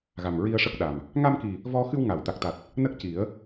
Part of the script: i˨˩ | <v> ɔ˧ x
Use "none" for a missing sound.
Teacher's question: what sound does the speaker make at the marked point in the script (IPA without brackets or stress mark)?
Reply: v